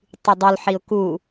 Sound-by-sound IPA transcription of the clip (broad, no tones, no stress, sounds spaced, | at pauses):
tˤ y dˤ o l ħ i ʊ̯ k u